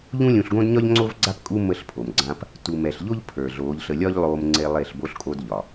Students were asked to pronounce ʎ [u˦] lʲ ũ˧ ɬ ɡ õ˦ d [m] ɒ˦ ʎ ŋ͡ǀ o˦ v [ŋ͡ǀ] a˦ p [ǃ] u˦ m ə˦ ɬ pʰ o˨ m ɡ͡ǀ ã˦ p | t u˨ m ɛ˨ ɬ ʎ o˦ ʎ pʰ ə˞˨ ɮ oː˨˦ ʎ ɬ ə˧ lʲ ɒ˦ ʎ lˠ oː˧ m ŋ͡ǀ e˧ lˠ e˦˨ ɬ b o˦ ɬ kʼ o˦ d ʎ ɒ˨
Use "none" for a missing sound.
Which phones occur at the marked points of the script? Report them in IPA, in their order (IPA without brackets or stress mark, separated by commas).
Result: ũ˦, ɲ, ɡ͡ǀ, kʼ